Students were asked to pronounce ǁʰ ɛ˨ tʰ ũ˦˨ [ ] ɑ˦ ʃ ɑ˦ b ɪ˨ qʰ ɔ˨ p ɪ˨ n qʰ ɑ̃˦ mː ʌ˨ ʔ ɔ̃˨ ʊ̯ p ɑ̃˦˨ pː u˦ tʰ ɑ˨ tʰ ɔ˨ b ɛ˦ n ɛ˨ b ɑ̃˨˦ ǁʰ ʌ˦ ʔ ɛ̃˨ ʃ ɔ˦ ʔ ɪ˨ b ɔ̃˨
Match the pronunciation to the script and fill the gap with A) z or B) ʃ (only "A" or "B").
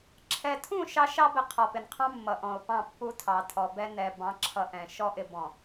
B